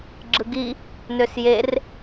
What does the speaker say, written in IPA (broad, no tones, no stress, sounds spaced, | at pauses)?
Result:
ɡ͡ǁ ɯ ɡ i | n ø s j e r